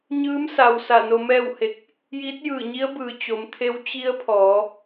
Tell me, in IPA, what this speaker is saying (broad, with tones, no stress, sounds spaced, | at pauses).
ɲ ɯː˧˥ m s a˩ w s a˧˩ n o˧ m ɛː˥˨ w h e˧ k̚ | j iː˧˥ t̚ j ɯː˧˩ ɲ i˧˥ ə̯ b ɯː˩ t͡ɕ o˩˧ m t̪ʰ e˧˥ w t͡ɕ i˧˥ ə̯ pʰ ɔː˩˧